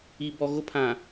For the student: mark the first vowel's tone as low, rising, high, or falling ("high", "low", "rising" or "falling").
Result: low